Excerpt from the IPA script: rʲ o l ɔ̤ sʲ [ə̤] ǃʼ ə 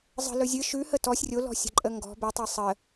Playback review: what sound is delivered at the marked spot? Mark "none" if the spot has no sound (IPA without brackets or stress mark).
ə̤